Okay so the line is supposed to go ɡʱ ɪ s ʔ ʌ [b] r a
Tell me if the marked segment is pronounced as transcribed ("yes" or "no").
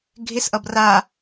yes